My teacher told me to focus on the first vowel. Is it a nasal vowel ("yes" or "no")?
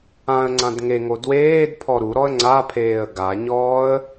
yes